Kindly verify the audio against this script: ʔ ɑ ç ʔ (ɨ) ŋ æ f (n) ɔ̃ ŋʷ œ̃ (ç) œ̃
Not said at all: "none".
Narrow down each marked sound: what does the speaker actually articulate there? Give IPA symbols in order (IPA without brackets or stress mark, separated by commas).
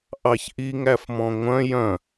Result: i, m, j